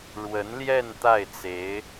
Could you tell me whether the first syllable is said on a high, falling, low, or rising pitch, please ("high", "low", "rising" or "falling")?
rising